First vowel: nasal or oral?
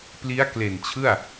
oral